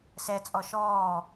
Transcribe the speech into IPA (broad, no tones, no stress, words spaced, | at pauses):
sɛ t͡sʼɔʃɔː